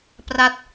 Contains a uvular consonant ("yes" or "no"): no